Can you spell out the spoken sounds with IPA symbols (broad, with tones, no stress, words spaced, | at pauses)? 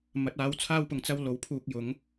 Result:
mɐ˨˥t̚aː˨˥wt͡sʰaː˥wpʊ˨˧ŋ t͡sɐ˥w lo˨wpʰuː˧k̚ jʊ˨˥ŋ